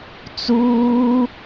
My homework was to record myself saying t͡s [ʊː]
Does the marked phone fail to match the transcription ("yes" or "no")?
yes